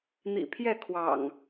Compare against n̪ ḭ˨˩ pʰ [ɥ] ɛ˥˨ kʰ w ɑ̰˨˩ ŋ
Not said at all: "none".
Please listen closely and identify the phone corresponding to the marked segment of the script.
j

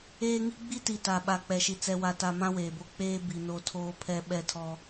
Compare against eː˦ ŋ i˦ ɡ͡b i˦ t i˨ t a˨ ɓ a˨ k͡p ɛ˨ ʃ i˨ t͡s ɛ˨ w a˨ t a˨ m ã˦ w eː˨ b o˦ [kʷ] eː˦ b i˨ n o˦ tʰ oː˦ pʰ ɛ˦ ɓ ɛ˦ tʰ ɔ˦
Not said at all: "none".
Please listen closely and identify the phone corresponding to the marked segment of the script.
k͡p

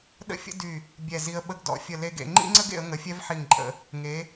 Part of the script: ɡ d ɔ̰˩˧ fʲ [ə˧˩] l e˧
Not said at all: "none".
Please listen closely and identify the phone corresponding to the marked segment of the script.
ə˧˩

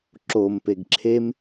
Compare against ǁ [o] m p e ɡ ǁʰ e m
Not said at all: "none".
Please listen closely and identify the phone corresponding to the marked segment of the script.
o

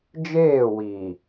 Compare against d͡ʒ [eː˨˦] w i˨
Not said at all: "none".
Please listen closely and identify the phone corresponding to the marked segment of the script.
eː˦˨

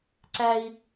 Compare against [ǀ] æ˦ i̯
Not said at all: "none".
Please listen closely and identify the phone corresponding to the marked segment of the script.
ǀ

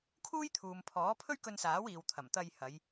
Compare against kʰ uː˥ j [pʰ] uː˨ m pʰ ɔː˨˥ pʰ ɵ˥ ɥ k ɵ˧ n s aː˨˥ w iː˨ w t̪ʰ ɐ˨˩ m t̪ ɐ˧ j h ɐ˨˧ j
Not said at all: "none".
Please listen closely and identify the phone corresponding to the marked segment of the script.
t̪ʰ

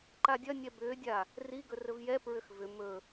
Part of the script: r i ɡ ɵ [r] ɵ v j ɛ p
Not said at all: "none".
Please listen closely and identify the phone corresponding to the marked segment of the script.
r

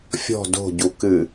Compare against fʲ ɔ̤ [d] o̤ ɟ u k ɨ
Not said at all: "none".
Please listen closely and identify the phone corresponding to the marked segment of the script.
d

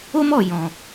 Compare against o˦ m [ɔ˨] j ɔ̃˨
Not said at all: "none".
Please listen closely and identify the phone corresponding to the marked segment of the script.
ɔ˨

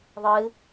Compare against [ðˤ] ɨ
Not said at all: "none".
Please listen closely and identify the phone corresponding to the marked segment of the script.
ðˤ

